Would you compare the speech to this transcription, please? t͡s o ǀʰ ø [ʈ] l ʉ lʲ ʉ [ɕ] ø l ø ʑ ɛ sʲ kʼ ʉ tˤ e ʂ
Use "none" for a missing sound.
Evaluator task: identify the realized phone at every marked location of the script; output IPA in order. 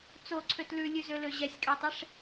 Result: t, z

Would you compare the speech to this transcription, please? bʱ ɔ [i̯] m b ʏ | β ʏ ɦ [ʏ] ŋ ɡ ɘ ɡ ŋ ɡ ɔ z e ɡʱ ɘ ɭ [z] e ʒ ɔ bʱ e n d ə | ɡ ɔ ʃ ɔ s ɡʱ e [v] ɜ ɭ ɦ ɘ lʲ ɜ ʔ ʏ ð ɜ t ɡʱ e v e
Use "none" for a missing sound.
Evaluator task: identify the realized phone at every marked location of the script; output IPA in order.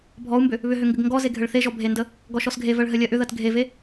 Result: u̯, ʏ, θ, v

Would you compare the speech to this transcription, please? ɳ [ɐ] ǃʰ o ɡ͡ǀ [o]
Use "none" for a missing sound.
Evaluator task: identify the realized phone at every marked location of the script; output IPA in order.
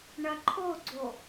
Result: ɐ, o

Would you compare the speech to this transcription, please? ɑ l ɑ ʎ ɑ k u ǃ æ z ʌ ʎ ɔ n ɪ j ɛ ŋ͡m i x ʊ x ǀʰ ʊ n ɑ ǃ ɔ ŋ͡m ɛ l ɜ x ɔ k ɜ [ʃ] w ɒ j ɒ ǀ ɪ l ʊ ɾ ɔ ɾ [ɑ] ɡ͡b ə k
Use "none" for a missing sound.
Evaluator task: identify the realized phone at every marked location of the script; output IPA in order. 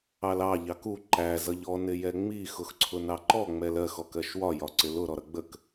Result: ʃ, ʌ

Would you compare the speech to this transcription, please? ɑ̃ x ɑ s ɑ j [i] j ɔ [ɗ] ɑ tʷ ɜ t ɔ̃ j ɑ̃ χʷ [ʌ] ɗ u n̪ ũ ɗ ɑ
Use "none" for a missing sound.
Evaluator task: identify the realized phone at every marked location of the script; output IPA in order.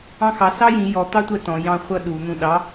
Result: ĩ, t̪, ʌ

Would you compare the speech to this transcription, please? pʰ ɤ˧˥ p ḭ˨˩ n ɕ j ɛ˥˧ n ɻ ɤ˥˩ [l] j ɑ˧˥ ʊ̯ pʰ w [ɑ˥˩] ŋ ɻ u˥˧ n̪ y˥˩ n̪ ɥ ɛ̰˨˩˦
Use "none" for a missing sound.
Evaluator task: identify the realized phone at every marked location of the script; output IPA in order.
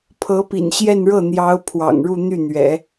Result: n̪, ɑ̰˨˩

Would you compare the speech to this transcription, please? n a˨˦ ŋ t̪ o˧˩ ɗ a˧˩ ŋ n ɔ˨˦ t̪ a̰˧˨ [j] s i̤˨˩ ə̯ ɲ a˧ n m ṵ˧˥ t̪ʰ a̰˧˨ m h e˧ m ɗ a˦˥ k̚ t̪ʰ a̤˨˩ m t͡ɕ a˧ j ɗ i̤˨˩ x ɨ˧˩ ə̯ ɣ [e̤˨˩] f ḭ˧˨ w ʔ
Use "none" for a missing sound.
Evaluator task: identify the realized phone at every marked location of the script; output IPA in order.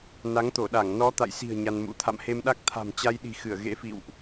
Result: j, ḛ˧˥

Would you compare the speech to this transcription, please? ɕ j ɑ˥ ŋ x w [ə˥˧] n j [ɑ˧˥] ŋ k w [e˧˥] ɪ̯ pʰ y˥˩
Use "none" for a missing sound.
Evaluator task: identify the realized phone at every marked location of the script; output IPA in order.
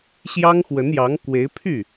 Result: ə˧˥, ɑ˧˥, e˧˥

